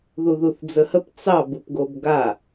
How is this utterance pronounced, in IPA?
ð u ð u θ d͡z ə h ə p t͡s ɑ b u p ɡ o b ɡ a

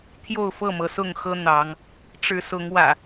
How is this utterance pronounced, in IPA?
t̪ʰ j o˥˨ ʊ̯ f ɤ˥˨ m ɤ˩ s ʊ˥˨ ŋ x ɤ˦ n̪ ɑ˨˦ ŋ | ʈ͡ʂ ɻ̩˨˦ s ʊ˨˦ ŋ w ä̰˨˩

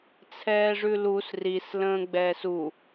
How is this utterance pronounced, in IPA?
t͡sʰ ɛː ʐ ʉ l u s r i s l ə̃ː ɡ͡b ɛː s u

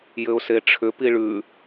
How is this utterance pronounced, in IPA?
j ɘ ʊ̯ s e ʈ͡ʂʰ ʏ p i ɭ ʉ

